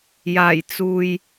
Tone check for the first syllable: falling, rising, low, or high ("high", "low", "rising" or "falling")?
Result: low